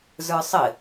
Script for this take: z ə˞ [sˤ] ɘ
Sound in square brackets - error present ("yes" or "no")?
no